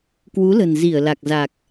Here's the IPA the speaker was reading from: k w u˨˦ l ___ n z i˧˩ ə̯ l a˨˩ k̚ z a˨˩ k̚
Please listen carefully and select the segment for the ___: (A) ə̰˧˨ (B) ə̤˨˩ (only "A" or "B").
B